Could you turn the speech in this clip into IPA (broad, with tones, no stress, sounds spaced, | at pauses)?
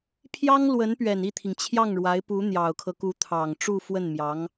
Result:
pʰ j ɑ˥ ŋ l w ə˧˥ n p ɥ ɛ˨˩ n i˥˩ t̪ʰ i˩ ŋ t͡ɕʰ j ɑ˥˩ ŋ ɻ w a˧˥ ɪ̯ p u˧˥ n̪ j ɑ˨˩ ʊ̯ kʰ ɤ˦ k u˧˥ t̪ʰ ɑ˨˩ ŋ ʈ͡ʂ u˥˧ f w ə˥˩ n m j ɑ˧˥ ŋ